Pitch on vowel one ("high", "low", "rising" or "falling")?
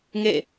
falling